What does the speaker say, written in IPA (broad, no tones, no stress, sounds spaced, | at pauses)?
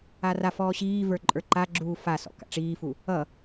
a r a f ɔː ɕ iː v ə˞ ǃʼ ə˞ ǃ a ɡ͡ǁ uː f a s ɔ̰ k a̰ ʈ͡ʂ iː f u | ʌ